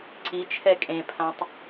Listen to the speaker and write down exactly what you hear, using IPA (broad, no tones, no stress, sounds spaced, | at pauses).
ǀ i t͡ʃʰ ɛ kʼ ẽ pʰ ã tˤ